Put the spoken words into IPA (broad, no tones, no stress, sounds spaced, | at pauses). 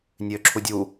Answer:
nʲ øː ǁʰ u dʲ u